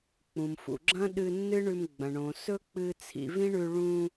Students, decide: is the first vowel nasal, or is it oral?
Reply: nasal